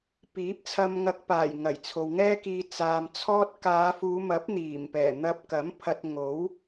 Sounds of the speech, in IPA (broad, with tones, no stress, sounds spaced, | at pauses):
p iː˨˥ p̚ t͡sʰ ɐ˧ m ŋ ɐ˧ k̚ p aː˨˩ j ŋ ɐ˨˩ j t͡sʰ o˨ w ŋ ɛː˥ k iː˧ t͡s aː˧ m t͡sʰ ɔː˥ t̚ k aː˨˧ f uː˨˧ m ɐ˨˥ p̚ n̪ iː˨˩ m p ɛː˨˩ n̪ ɐ˧ p̚ k ɐ˨˥ m pʰ ɐ˧ t̚ ŋ o˨˥ w